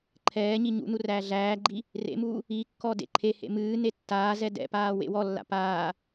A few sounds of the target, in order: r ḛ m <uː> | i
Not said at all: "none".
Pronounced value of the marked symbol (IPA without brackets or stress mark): uː